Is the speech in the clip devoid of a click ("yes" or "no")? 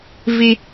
yes